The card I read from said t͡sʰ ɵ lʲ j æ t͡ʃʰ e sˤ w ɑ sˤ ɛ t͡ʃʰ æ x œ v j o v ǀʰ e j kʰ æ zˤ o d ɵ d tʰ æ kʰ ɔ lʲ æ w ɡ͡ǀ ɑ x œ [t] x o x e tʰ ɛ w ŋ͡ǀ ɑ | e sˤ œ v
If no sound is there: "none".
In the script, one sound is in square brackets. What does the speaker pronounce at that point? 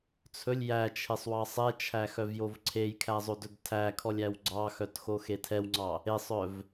t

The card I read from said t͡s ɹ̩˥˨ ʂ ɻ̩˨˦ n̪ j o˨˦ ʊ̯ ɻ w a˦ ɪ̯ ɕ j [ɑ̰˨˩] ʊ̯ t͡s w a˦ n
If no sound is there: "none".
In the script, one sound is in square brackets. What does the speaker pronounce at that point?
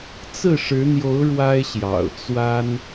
ɑ̰˨˩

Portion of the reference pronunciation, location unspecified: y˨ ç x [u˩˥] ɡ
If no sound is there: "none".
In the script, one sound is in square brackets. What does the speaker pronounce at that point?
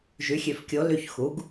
u˩˥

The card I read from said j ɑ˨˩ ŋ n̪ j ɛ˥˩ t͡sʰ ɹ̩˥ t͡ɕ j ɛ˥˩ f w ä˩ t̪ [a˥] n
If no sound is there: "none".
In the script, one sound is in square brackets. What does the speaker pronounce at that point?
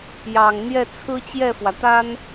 a˥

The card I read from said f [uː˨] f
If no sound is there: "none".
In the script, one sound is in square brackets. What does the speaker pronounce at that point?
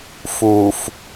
uː˨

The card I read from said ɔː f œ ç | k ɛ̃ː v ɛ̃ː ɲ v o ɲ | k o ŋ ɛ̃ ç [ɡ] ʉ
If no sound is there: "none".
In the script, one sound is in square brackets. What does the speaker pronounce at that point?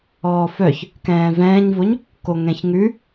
ŋ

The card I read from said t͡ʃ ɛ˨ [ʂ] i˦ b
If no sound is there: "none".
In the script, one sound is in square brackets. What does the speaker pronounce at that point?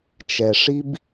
ʂ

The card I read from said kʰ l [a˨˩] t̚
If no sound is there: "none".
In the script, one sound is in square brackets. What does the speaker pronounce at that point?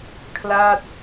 a˥˩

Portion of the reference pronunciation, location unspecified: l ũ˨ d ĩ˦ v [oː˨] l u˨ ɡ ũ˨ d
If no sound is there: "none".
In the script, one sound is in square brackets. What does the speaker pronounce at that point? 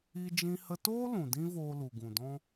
oː˧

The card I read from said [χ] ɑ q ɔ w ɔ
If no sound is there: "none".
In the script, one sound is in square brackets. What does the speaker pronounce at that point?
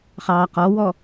χ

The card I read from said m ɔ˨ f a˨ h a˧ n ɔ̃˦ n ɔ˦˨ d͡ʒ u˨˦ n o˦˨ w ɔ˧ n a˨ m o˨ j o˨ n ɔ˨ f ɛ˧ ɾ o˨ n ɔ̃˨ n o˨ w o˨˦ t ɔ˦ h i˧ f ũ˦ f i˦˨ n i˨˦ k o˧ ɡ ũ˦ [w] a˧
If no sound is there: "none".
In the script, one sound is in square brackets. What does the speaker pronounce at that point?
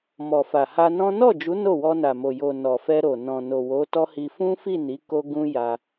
j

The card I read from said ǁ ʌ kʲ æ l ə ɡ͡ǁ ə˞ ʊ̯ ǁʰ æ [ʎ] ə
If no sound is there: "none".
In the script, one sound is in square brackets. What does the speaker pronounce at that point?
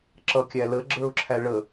ɭ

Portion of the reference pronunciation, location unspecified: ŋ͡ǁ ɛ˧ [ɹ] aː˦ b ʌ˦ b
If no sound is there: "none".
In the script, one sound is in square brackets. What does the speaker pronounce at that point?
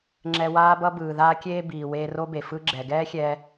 w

